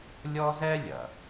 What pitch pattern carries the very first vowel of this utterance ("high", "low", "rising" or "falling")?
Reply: high